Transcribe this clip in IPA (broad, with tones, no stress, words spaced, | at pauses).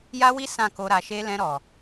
ja˦wi˦ sã˦˨ko˧ ɾa˨ʃe˧ lɛ̃˧ɾɔ˨